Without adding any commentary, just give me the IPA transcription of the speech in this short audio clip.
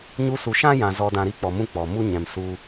ɲ u˧ s u˨ ʃ ã˦ j ã˨ z ɔ˧ d ã˧ ɾ i˦ k͡p ɔ˨ m ũ˦ k͡p ɔ˨ m u˦ ɲ ɛ̃˨ m s u˧

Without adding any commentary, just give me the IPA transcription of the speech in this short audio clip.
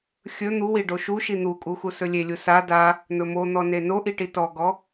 xʲ ɵ n̪ u w i ɖ o ʃ u ʃ i n̪ u kʼ u x u s ɵ lʲ e lʲ u s a d a | n̪ ɵ m o n̪ ɔ n e n o ʔ i ʈ i t ɔ ɡ ɔ

